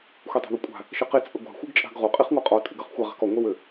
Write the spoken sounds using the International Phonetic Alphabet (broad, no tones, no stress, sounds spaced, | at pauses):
xʷ e dˤ a̤ ðˤ ɘ kʷʼ a̤ | ʃ ɘ q e t͡sʼ ɘ ɡʷ a̤ xʷ e ɡ t͡ʃʼ a̤ ɡ ʁ o qʼ i χ ŋʷ a qʼ ɔ tʼ ɘ ɡ ɐ χ xʷ ɐ ʁ a̤ k ɔ ŋʷ e w ɘ